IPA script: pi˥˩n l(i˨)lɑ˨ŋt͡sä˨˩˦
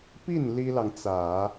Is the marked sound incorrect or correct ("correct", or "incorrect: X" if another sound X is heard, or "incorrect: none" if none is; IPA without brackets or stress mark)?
incorrect: i˥